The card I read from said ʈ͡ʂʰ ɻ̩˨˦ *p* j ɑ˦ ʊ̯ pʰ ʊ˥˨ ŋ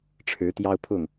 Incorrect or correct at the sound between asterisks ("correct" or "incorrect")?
incorrect